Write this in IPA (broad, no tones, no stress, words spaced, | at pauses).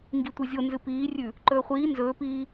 ŋɡitʷɨzʲo nzɨpiːrʲʉ | ǃɵːχʷiː nzɵːpiː